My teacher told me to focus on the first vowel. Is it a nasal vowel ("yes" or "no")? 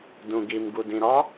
yes